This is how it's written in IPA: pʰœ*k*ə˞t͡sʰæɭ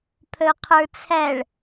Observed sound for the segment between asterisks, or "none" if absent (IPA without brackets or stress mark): qʰ